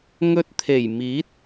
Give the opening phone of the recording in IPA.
ŋ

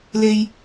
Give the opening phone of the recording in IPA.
l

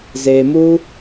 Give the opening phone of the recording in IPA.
z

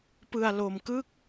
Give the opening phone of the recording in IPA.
p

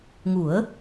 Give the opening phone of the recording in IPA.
ŋ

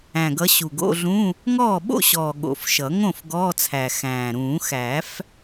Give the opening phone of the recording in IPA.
æ̃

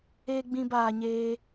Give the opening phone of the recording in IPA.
eː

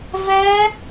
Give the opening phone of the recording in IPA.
v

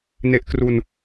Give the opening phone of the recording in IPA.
n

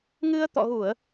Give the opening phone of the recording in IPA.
ŋ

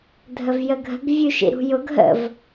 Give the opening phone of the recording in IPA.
dʱ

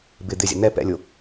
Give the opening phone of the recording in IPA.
b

